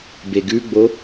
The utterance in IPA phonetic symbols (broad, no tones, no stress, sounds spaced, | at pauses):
b e ɡ ʉ ɡ͡b o